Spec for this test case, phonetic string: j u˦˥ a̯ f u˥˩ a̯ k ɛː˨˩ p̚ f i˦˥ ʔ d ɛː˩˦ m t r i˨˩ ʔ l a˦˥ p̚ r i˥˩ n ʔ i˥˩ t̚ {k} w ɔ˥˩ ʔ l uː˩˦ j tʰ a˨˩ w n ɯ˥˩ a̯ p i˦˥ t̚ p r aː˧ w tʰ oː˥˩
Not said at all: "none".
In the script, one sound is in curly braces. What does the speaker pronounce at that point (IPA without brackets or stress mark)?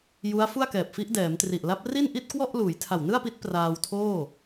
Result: k